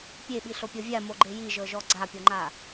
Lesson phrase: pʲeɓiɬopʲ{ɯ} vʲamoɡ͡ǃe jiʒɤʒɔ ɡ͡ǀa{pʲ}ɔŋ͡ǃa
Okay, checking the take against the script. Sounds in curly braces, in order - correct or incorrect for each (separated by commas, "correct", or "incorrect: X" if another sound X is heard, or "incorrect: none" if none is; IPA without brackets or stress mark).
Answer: incorrect: ɤ, correct